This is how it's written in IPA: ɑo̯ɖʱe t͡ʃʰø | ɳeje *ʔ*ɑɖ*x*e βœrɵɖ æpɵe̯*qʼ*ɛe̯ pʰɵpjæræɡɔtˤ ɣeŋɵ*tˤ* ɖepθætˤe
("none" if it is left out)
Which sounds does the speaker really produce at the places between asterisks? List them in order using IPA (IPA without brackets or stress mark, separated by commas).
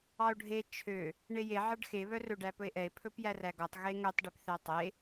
ʕ, x, ʔ, tˤ